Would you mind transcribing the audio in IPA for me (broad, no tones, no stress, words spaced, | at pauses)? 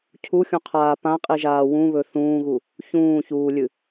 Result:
cʰuxʲũqʰaː pãqʼiʒaː wũβɵ θũːɣu | çũːçuːlʲɨ